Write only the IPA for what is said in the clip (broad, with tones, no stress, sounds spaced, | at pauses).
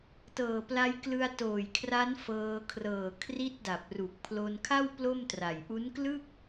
t ɤː˨˩ p l a˧ j k l ɯ˧ a̯ t oː˨˩ j kʰ r a˦˥ n f ɤː˧ kʰ r ɤː˨˩ kʰ r i˦˥ t̚ d a˨˩ p̚ r u˨˩ k̚ pʰ l o˧ n kʰ a˥˩ w p l o˥˩ m t r a˨˩ j ʔ u˦˥ n k l ɯ˥˩ k̚